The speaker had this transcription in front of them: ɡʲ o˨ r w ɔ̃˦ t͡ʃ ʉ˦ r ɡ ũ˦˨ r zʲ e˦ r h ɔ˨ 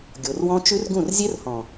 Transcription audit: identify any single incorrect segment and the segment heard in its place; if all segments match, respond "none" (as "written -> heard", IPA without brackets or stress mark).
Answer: ɔ˨ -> ɔ̃˨